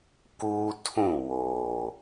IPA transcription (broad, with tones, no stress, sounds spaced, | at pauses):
k uː˦ tʰ ũ˦˨ w oː˨